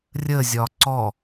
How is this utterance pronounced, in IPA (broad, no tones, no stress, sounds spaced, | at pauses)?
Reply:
rʲ ə zʲ ɒ ǀ ɔ